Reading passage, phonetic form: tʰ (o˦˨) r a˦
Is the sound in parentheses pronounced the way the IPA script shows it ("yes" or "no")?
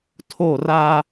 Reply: yes